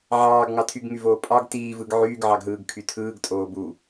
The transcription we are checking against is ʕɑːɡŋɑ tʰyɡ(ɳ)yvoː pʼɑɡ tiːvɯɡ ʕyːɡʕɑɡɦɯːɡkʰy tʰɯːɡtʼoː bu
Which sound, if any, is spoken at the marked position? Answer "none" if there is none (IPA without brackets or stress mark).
ŋ